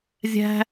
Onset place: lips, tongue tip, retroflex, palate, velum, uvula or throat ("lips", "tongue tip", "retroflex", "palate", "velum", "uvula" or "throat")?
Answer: tongue tip